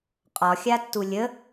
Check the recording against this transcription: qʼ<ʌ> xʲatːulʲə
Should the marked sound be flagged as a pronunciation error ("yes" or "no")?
yes